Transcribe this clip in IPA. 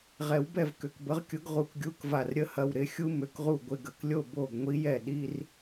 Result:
ʁ ɛ˨˦ w b ɛ˥˨ v k ʏ˩˧˩ k b ə˨˦ ʁ kʲ ʊ˨˦ ɡ ʁ u˧˩ k ɡʲ u˧˥˧ k v a˧˩ r ɾʲ ə˧˥˧ h ɐ˩˧˩ w ɾ ɪ˨˦ xʲ u˦˥ m ʏ˩˧˩ k ʁ u˧˩ ɡʷ ɪ˩˧˩ ɡ ə˧˩ k lʲ o˥˨ b o˧˩ ɡ ŋʷ i˨˦ j ɛ˧˩ ɗ i˧˥˧ r

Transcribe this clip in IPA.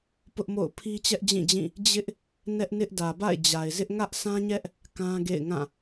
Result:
p ʊ˦ ʔ m o̰˦˨ ʊ̯ pʰ i˦ t͡ɕ ɛ˦ ʔ d͡ʑ ĩ˦˨ d͡ʑ ĩ˦˨ | d͡ʑ ɪ˦ ʔ | n ɛ˦ ʔ n ɪ˦ ʔ d ä˨ b a̰˦˨ ɪ̯ d͡ʑ a˨ ɪ̯ z ɪ˦ ʔ ŋ ä˦ ʔ sʰ ã˦ ɲ ɛ˦ ʔ | k ã˦ ɡ ḛ˦˨ ɪ̯ ŋ ã˦˨

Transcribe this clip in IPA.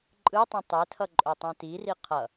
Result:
ǃʼ ɯ tˤ ũ tˤ e tʰ ʌ ǃʼ o tˤ ũ t i r i qʰ ʌ

